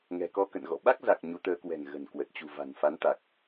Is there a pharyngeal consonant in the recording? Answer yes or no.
no